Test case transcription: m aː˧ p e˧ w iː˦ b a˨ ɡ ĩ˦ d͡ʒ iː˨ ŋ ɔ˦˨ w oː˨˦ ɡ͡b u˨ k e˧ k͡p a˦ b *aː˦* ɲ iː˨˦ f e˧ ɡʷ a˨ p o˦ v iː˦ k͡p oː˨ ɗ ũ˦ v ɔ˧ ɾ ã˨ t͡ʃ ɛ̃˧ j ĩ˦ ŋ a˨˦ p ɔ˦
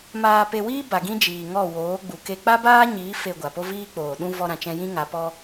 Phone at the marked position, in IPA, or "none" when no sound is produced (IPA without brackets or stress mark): aː˦